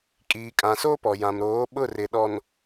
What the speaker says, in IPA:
kʼiː˨kʼã˨so˦ pɔ˨ jã˨m ɾoː˨˦ɓʊ˦˨rɪ˨ ɗɔ˨n

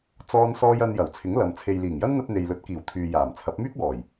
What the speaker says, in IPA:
t͡sɔː˥nsɔː˥j ɐ˧njɐ˨˩w t͡sʰɪ˨˥ŋlɐ˨m t͡sʰe˨jliː˨˩ŋjɐ˥nn̪ɐ˧t̚ n̪e˨jlɵ˨˥t̚kiː˨˩w t̪ʰyː˨jaː˨˩mt͡sʰɐ˨˥p̚ myː˥k̚wɔː˨˩j

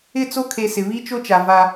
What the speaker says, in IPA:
ɪ˦˨t͡so˦kʰe˨ sɪ˨βi˦t͡ʃo˦t͡ʃa˨ va˨

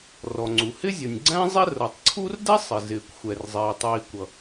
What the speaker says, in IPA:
rɔ˩ŋ͡ǀu˩ hɪ˥zʲɒ˩nʲɡ͡ǀæ̃˥ zˤɪ˥ rʌ˩tˤǀʰu˥r dɛ˥sˤɪ˩zɪː˩kʷ xʷɛ˩rzˤɪː˩ tˤiː˩ kʷʌ˩

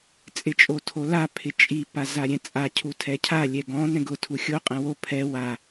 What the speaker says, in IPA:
t͡sʼɪt͡ʃʼotʰola pʰɪt͡ʃʼi pazaɾʲɛ̃t͡sʼa cʰutʰɛcʰa lʲɛɡɔ̃ nɛ̃ɡʊ tʰuxʲo qʼɛ̃wo pʰɛ wa

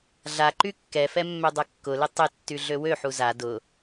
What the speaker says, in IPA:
ɮaǃy kːɛfɛ mːødˤɐkːʊlɪ tˤɪtːy ɮøwøħu za dʊ

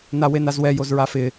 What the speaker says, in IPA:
nawenazwɛ jozɹafɪ

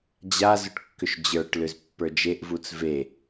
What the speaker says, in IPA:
d͡ʑazʏʈkːʏʃ d͡ʑə˞ʈlʏz pːə˞d͡ʒeʔvut͡s ve

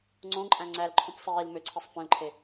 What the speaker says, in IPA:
ŋ͡ǀõǃʼæ̃ ŋ͡ǀælǃʰũp sˤiːl møǀʰisˤ fœ̃lǃʰe

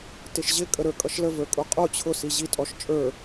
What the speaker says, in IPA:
tɪʃʑɪkʼə ɾə˞kʼʌʃləvə˞ kʼuqʼu t͡ɕʰʊ siʑitʼɔʃ t͡ʃʼə˞

